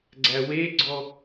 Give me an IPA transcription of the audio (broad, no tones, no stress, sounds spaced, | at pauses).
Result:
ɡ͡ǀ æ w e ɡ͡ǀ ɔ